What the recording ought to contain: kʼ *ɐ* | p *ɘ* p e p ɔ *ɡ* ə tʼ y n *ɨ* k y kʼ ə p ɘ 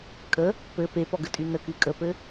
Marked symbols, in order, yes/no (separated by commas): no, yes, yes, no